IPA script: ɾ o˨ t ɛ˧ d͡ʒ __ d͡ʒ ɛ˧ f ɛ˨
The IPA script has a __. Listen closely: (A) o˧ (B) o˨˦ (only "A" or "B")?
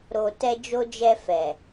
A